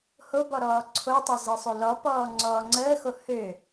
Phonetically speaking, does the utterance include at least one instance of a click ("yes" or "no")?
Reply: yes